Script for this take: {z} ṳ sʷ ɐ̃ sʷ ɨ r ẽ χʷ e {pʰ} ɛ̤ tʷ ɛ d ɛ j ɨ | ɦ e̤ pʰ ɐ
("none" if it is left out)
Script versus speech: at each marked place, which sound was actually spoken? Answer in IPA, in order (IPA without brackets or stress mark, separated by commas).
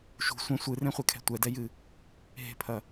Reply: ʃ, kʰ